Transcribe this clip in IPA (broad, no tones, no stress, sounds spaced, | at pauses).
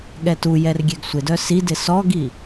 ɠ ɛ t u j ɛ r ɡʲ ɛ ɡ sʷ ɪ d œ s i d ɪ s ɔ ɡ i